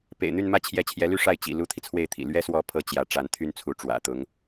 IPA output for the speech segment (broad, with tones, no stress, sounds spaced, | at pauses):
p ḛ˨˩ ɪ̯ n̪ y˥˧ n m ä˥˧ t͡ɕʰ j ɛ˥˩ t͡ɕʰ j ɛ˧˥ l y˥˧ ʂ a˥˩ ɪ̯ t͡ɕ ḭ˨˩ l u˥ t̪ʰ i˨ t͡sʰ w e˥˩ ɪ̯ t̪ʰ ḭ˨˩ l ɥ ɛ˥ s w ɔ˧˥ pʰ ɤ˥ t͡ɕ j ä˧˥ ʈ͡ʂ a˧˥ n t̪ʰ y˥ n t͡sʰ u˧˥ ʈ͡ʂ w ä̰˨˩ t̪ ʊ˧˥ ŋ